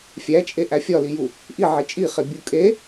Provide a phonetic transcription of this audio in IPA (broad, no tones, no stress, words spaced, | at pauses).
fʲæt͡ʃʼe ʔæfʲɒliju | ʔi ʕet͡ʃʼiχe bʲukʼe